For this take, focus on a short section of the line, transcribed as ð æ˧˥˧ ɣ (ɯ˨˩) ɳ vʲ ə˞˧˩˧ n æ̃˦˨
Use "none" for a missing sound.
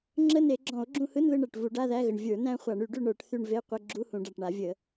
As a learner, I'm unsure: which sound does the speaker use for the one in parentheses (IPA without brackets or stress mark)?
ə˨˩